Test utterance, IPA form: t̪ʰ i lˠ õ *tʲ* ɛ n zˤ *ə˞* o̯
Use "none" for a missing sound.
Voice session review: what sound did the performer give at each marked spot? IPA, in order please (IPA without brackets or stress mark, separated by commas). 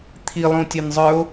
tʲ, ə˞